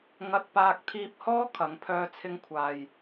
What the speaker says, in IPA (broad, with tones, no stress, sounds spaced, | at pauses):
ŋ ɐ˧ t̚ p aː˧ k̚ t̪ʰ iː˧ p̚ h ɔː˥ kʰ ɐ˨˥ ŋ pʰ œː˥ t͡sʰ ɪ˥ ŋ kʷʰ aː˨ j